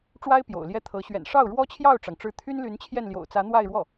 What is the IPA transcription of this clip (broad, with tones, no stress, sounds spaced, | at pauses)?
ʈ͡ʂ w a˥ ɪ̯ p j o̰˨˩ ʊ̯ l j ɛ˥ t̪ʰ ɤ˧˥ ɕ ɥ ɛ̰˨˩ n ʂ ɑ˥˩ ʊ̯ ɻ w ɔ˥ t͡ɕʰ j ɑ˥˩ ʊ̯ ʈ͡ʂ ɑ˩ ŋ ʈ͡ʂ ɻ̩˧˥ t̪ʰ y˥ n l y˧˥ n t͡ɕʰ j ɛ˥˩ n l j o̰˨˩ ʊ̯ t͡s ä˧˥ n̪ w a˥˧ ɪ̯ ɻ w ɔ˥˩